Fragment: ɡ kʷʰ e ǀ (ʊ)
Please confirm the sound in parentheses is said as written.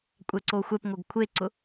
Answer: yes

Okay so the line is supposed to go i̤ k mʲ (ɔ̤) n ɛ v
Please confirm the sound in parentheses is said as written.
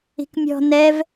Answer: yes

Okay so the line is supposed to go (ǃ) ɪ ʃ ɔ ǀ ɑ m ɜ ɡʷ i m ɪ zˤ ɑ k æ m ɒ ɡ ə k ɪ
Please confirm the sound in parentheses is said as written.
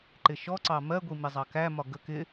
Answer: yes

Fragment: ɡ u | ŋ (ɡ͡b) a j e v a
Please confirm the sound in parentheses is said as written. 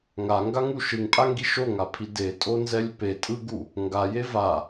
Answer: no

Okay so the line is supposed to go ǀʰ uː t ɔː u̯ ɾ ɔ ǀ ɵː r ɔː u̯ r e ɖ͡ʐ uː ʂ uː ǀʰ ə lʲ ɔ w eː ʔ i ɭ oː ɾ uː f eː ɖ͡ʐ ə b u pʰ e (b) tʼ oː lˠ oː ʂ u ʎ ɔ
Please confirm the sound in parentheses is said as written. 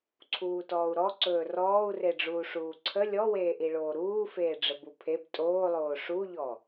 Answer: yes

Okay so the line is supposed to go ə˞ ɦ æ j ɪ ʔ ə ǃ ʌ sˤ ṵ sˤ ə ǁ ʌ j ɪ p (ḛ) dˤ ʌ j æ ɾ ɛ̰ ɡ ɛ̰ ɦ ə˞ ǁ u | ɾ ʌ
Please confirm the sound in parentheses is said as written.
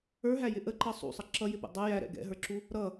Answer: no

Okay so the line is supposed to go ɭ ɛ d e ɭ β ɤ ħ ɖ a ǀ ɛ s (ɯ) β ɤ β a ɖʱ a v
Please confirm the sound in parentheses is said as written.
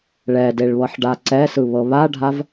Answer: yes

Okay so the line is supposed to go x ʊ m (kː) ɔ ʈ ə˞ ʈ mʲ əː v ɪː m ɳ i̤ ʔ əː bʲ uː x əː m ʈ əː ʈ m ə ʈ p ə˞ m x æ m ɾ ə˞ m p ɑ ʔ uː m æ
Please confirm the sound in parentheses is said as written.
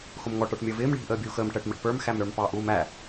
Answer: no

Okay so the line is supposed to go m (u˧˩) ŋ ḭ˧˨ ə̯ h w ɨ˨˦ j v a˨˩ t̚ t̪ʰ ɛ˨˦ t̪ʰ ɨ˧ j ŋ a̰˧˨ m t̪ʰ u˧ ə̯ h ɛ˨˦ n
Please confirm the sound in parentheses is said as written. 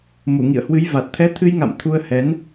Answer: yes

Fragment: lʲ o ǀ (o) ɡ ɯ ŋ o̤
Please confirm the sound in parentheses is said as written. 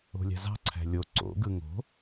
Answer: no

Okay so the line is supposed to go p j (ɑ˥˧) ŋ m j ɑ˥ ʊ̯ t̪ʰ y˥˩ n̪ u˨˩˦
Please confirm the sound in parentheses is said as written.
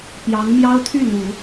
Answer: no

